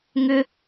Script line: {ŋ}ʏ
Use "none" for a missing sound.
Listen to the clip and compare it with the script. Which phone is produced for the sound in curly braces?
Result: ŋ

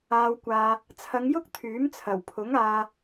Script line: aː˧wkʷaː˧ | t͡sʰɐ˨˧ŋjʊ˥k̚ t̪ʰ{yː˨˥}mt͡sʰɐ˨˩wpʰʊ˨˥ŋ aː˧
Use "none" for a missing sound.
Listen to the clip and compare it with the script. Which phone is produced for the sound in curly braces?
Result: yː˨˥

